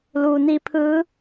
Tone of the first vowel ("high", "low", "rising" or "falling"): low